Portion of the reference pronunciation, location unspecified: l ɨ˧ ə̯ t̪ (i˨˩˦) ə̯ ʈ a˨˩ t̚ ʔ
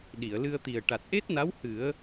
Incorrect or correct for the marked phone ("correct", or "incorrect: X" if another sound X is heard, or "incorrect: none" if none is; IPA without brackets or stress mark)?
incorrect: i˨˩